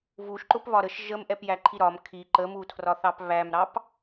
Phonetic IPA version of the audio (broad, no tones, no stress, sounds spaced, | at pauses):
v u ʃ ǃ ʊ p β ɒ ɾ ə ʃ ʒ ə m ʔ ɛ p j æ ǃʰ i ɾ ɒ m kʰ i ǃ ə m u tʰ r ɒ θ ɑ p β æ m ɾ ɑ p